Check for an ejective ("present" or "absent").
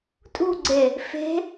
present